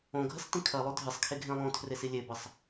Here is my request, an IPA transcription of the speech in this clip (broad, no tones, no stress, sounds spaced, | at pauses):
õ ɡʱ ɐ s t ĩ kʰ ɐ lˠ o dʱ ɨ sˤ kʰ e ɡʱ ẽ lˠ õ tʰ r e s i lʲ e b ɐ sˤ